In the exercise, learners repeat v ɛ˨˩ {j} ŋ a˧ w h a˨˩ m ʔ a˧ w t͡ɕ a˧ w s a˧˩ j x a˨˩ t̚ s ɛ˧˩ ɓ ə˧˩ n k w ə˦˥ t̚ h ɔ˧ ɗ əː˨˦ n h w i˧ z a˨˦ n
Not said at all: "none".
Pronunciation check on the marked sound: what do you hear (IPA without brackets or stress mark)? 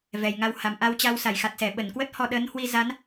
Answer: j